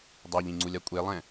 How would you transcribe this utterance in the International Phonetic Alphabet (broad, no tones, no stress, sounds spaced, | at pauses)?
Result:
dˤ œ ʎ ĩ ŋ͡ǀ u lʲ a kʷʼ e lˠ ɛ̃